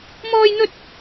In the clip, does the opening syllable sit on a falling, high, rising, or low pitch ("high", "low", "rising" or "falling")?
high